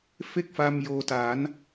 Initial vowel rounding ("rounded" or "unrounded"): unrounded